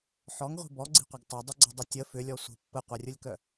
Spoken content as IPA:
ħ ɔ ŋ ʁʷ i̤ b ɔ ɡ͡ǀ i̤ qʷ ɐ ɡ tˤ ɐ dˤ ʏ ɡ͡ǀ ə dˤ ʊ tʲ ə f ʏ lʲ ɔ sʷ ə̤ pː ə qʷ ɐ rʲ ʊ lʲ k œ

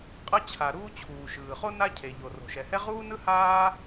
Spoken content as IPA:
qʼ ʌ˥ t͡ɕʰ a˩ ɾ uː˥ t͡ɕʰ uː˩ ʃ ɯː˩ χ o˥ n a˥ cʰ e˩ ʎ o˩ r o̤˩ ʃ ɛ˩ h ɛ˥ ʁ uː˥ n ɯ˥ h aː˥

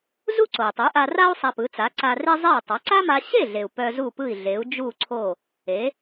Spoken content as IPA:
z u˥ ǀ o˩ i̯ tˤ u˩˥ ʔ a˧ r a˥ u̯ sˤ a˧ p ɯ˩˥ t͡s a˩˥ ǀ a˧ r e˥ zˤ e˥˩ u̯ tˤ a˩˥ ǀ a˥ m a˧ ɕ e˥˩ ɮ e˩ u̯ p œ˧ z u˥˩ p ɯ˥˩ i̯ ɮ e˩˥ u̯ d͡ʒ u˥˩ ǀʰ o˥˩ | e˩˥

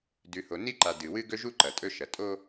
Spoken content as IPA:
d ʉ˨ h o˨ n i˦ ǃ a˨ d ɨ˨ w ɨ˦ ɡ ɵ˦ ʒ u˦ ǃ ɐ˨ tʼ ɵ˦ ʃ ɐ˨ tʼ o˦

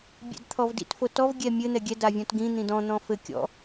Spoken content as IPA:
bʲ ɛ̰ d t̪ʰ ɔ v d ḭ t f o t ɔ v ɡʲ ɛ mʲ ɘ n̪ ɛ ɡʲ ɛ d a vʲ ɔ̃ t ɡ ĩ n̪ ĩ d ɔ̃ n̪ ɔ̃ f ɘ kʲ ɔ̰

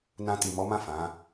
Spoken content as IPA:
n ã˧ t i˨ m ɔ˨˦ m ã˦˨ f ã˨˦

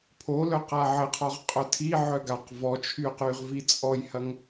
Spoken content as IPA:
pʰ o l œ q a ʕ ɘ qʰ ɔ ʁ qʼ œ tʰ i ʕ œ ɡ a q v ɔ t͡ʃʰ y q y ʁ v i t͡sʼ ɔ j h ɐ ŋ

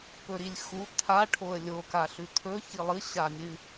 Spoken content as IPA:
p ɵ ɾ i lʲ x u t̪ʰ a ʈʰ o ə̯ lʲ o k a ɬ ʉ t̪ʰ ɵ ç i lˠ ɨ ɕ a mʲ ɨ

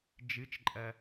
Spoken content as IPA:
d͡ʒ ɨ t͡ʃ ǃʼ ɐ

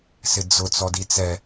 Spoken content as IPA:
s ɪ d͡z ʊ t͡s ɔ d i t͡s ɛ

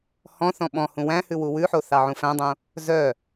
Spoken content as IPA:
h ɔ̃ θ ɔ̃ ɓ ɔ̃ h ũ w æ̃ h ʉ w u w ʉ ħ o θ ɑ ʕ ũ f æ̃ dˤ õ | z œ

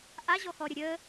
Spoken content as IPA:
ʔ a ʑ ɔ x ɔ ɾʲ ə ɾʲ ə

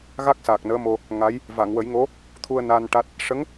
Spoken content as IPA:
ɣ a˦˥ k̚ s a˨˩ k̚ n əː˧˥ m o˧ | ŋ a˧˥ j | v a˨˩˨ ŋ w ə˨˩˦ j ŋ o˧˥ | t̪ʰ u˧ ə̯ n a˧ n ʈ a˦˥ t̚ | ʂ ə˧˥ ŋ

